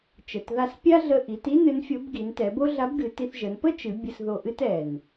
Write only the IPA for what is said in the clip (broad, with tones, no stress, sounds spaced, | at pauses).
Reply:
t͡ʃ ə˩ t ð a˧ s pʲ a˥ ɮ ə˧ ʔ i˩˧ t i˥ n ɨ˧˥ n fʲ o˧˥ b ɡ i˩˧ n t ɛ˩˧ b o˥ ɮ a˧˥ b ɡ ɨ˩˧ t i˧ θ ʒ ə˩˧ n p ə˥ t͡ʃ ɨ˩˧ bʲ ə˧ s ð o˧ ʔ ɨ˥ t ɛ˩ n